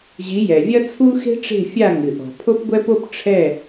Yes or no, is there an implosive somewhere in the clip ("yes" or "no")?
no